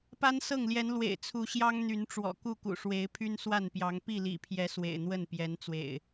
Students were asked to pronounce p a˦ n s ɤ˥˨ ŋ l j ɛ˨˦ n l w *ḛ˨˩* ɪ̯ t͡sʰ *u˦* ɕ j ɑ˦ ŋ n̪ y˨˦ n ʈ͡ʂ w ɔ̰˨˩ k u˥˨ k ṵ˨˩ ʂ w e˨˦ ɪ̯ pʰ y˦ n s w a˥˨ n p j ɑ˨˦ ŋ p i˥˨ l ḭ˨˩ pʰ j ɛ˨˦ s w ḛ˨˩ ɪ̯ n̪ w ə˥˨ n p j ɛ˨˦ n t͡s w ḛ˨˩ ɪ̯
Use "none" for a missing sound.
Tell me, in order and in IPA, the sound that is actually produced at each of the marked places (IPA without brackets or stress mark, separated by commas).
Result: ḛ˨˩, u˨˦